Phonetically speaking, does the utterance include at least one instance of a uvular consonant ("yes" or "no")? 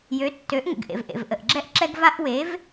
no